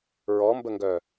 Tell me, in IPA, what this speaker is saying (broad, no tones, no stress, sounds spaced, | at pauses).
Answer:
ɹ ɔ m b ə ŋ ɡ œ